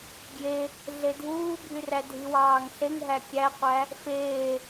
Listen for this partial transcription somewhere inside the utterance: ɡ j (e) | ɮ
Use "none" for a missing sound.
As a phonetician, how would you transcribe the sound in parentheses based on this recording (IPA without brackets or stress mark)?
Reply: e